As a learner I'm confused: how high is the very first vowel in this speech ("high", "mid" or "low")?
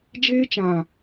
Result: mid